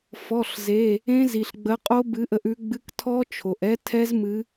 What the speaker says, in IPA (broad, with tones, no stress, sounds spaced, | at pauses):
f ɔ˩˧˩ ɬ z e˩˧˩ | ẽ˦˥ z i˩ ɬ ɡ͡b ə˨˦ qʼ o˦˥ b ɨ˨˦ ʔ ə˨˦ ʔ ʉ˨˦ ɡ͡b ɨ˧˥˧ k tʰ ɔ˦˥ t͡ʃʰ o˩ ʔ ɛ˦˥ tʰ ɛ˦˥ z m ɨ˨˦